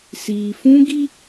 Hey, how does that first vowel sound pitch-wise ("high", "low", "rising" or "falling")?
low